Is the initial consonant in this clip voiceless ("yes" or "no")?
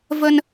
no